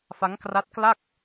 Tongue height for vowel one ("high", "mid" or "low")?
low